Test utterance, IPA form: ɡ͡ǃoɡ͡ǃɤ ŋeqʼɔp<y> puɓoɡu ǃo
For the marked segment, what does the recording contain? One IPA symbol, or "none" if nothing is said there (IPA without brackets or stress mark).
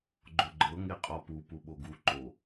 u